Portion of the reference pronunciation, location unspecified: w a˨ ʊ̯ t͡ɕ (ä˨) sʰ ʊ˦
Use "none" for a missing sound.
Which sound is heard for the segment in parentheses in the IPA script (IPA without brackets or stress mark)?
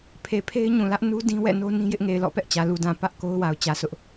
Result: ä˨